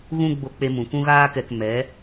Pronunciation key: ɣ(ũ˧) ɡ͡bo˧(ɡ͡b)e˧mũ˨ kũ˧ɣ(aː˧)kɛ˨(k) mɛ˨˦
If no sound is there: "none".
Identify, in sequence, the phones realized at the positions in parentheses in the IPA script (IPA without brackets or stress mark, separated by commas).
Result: ũ˧, k͡p, aː˧, k